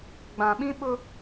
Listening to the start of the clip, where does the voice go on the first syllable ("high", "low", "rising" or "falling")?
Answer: low